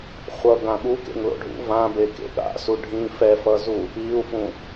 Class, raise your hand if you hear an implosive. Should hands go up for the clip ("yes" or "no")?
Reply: yes